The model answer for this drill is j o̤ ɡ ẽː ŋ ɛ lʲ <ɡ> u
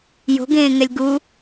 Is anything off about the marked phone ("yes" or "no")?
no